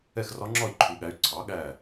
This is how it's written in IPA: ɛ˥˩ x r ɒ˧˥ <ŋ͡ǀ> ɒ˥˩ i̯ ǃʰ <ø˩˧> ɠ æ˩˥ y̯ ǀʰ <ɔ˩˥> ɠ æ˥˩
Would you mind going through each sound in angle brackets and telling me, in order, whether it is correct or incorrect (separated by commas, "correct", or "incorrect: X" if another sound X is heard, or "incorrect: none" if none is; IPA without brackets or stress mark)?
incorrect: ŋ͡ǁ, incorrect: u˩˧, incorrect: ɑ˩˥